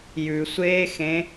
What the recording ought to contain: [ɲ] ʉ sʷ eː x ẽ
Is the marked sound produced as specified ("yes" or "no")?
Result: no